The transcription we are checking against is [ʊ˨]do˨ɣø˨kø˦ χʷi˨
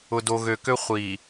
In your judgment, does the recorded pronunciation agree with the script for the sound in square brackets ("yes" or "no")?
yes